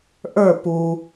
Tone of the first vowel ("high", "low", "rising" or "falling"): falling